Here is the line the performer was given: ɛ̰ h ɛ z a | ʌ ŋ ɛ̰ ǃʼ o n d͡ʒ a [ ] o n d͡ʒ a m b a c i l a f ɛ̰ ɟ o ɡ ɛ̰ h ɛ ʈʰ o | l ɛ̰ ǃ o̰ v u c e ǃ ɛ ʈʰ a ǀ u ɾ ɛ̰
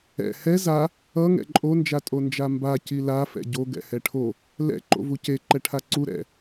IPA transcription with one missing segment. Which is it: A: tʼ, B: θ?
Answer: A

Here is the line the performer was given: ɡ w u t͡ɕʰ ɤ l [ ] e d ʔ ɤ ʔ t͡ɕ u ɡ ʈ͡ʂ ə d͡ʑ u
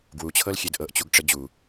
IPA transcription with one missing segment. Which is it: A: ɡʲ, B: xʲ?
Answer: B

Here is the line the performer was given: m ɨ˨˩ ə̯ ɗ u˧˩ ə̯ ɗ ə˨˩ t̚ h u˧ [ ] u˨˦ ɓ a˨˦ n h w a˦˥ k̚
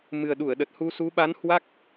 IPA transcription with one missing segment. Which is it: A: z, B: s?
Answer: B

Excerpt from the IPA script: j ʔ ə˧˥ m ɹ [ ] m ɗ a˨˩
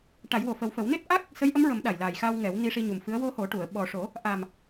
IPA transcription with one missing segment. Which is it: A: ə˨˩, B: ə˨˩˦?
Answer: B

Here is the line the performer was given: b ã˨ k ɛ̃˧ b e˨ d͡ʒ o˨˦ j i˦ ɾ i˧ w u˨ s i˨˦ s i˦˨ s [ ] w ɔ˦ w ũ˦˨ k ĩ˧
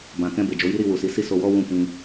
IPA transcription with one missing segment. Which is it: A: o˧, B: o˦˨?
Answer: A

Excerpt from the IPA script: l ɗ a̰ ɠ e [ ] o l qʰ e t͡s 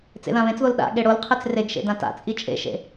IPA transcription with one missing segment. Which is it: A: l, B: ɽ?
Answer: B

